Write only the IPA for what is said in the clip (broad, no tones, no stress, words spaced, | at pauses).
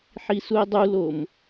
ħisue̯dˤulom